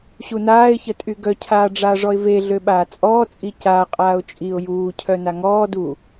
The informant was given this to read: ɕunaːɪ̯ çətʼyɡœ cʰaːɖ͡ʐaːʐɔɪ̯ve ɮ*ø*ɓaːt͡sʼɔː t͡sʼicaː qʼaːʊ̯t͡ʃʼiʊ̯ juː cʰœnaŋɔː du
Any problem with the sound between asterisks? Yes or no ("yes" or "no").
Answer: no